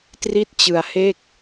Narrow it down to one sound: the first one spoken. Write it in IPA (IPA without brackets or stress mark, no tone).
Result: t